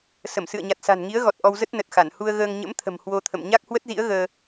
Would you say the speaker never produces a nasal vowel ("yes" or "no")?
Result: yes